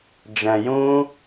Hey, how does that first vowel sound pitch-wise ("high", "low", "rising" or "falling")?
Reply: low